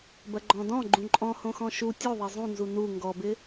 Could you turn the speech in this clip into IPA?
b ɐ ɡ͡ǃ ɔ̃ d ɔ̃ ɡ͡ǃ ũ ǃʼ ɔ̃ h õ x ɔ̃ ʃ u tʲ o ðˤ e zˤ ũ n z u n u ŋ ɡ ɔ b ɪ

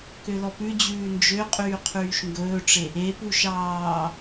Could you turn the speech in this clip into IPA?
k ø l ɔ p ʉ d͡ʑ ʉː n d͡ʒ ø qʼ yː qʰ yː ʃ ŋ ɡ ɵː ʈ͡ʂ e | e p u ʃ ɑː

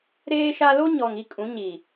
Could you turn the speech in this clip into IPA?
ɾ eː˦ ʃ a˦ l o˦ ɲ ɔ˨ ŋ i˦ kʼ ũ˨˦ ɲ i˨

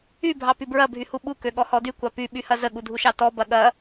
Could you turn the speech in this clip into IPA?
y bʱ ɑ p y b ɹ ɐ bʱ y h u ɓ u k ø ɠ ɔ h ɔ d y kʷ ɑ p y ɓ y h ɐ z ə ɠ u dʱ u ʃ ɑ t ɔ b ɐ ɠ ɐ

